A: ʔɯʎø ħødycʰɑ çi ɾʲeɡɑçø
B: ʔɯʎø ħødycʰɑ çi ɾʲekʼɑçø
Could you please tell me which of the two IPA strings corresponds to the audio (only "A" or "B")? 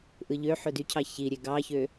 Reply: A